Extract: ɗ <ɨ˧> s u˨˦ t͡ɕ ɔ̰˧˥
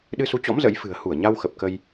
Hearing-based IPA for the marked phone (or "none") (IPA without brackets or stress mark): ɨ˧